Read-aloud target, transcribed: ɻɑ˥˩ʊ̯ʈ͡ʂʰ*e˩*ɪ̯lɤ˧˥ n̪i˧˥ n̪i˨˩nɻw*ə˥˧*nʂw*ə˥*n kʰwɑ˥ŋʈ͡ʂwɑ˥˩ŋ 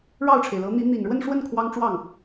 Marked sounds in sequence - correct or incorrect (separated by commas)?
correct, correct, incorrect